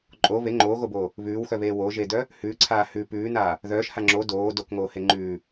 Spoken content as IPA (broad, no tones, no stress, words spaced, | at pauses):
ǃʼo βe ŋ͡ǃoːɣoboː | βʉːwxœβeː woʒedœ | hʉːǀʰaː hʉ pʉːnaː | ðœːʃha ŋ͡ǁo doː dokŋoːhe ŋ͡ǃʉː